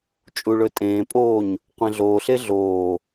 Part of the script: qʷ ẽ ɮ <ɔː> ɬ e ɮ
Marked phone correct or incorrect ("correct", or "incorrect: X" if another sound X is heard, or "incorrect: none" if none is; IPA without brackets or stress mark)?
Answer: incorrect: oː